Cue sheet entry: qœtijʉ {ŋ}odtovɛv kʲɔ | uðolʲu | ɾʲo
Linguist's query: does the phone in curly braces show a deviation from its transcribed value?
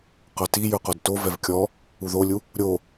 yes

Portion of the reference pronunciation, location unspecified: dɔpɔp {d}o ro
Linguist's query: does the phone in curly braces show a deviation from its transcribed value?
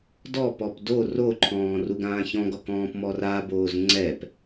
no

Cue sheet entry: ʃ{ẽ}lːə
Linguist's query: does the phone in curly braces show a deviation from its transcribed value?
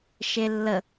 yes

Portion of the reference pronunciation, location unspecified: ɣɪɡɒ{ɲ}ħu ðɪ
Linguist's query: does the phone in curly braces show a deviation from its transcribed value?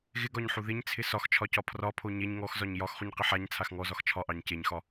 no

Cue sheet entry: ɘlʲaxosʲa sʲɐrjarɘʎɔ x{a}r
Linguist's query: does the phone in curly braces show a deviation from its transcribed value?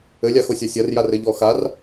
no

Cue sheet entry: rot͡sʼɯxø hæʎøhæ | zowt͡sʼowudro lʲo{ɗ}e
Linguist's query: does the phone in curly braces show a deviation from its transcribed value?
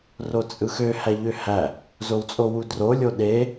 no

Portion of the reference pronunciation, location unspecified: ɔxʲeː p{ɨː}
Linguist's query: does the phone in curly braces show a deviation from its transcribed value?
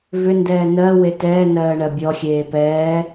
yes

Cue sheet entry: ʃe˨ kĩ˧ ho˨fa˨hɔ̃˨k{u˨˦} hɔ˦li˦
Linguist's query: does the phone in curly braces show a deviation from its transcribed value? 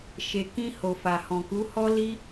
no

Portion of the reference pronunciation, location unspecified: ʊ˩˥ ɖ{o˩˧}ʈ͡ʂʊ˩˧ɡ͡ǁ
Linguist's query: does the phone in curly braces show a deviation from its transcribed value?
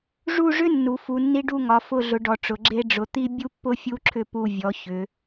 yes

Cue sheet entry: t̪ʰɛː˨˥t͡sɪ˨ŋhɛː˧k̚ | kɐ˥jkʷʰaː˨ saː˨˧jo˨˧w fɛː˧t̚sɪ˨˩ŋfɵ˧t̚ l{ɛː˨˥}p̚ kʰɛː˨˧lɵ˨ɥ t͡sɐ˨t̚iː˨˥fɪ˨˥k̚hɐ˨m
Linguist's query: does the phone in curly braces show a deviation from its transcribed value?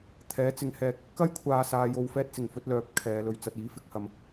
yes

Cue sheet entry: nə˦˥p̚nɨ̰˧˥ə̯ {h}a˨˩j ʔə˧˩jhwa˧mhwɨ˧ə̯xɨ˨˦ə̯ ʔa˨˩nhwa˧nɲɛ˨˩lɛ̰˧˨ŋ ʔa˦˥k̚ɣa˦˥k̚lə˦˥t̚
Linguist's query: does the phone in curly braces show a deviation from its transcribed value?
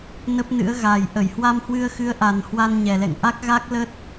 yes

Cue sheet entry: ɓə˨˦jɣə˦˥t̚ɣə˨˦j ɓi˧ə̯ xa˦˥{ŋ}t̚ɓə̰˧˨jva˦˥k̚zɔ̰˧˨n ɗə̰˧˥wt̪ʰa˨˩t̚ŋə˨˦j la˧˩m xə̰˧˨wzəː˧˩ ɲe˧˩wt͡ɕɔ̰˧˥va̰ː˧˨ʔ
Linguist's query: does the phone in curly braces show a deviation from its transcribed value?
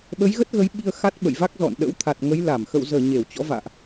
yes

